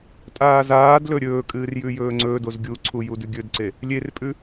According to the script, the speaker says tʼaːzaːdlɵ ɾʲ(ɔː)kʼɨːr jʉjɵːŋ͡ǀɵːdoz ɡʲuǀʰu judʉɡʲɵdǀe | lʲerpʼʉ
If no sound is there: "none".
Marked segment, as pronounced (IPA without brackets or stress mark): ɵː